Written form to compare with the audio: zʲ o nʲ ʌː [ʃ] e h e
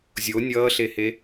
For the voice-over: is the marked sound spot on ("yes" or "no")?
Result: no